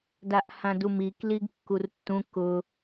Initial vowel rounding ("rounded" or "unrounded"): unrounded